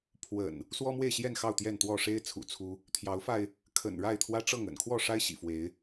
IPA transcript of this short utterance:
pʰwə̰˨˩n | swɔ˦mwe˥˨ɪ̯ɕjɛ˥˨n xɑ˥˨ʊ̯t̪jɛ˥˨nt̪wɔ˥˨ ʂe˦ɪ̯ t͡sʰṵ˨˩t͡sʰu˦ | t̪ʰjɑ˨˦ʊ̯fa˧ɪ̯ | kʰə̰˨˩nɻa˥˨ɪ̯ t̪ʰwä˦ʈ͡ʂɤ˥˨ŋ ə̰˨˩n kʰwɔ˥˨ʂa˦ɪ̯ ɕḭ˨˩fwe˨˦ɪ̯

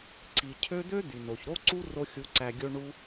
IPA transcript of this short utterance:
ǀi˨cʰø˦ d̪ø˦ d̪y˨no˨ç ɾo˦ǀu˦ ro˧xʲu˨˦ ǀæ˨ɡʲo˧ ɳu˦

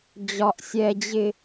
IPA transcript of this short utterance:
d͡ʑɒ˨ʔsʲɛ˨d͡ʑɪ˨

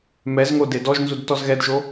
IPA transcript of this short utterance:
mɛzŋo dedɔʒnzud tɔzɣɛdʒo

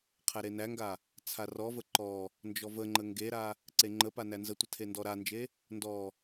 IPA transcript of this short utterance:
qʰæɾenæŋɡa | t͡sʰarɔvə ǃɔ | nd͡ʒɔvəŋ͡ǃə ŋɡeɾa | ǀeŋ͡ǃəpa nænzətʷə tʰendɔɾand͡ʒe | ndɔ

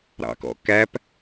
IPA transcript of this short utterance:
ɾɑ̰kɔ̰kæp

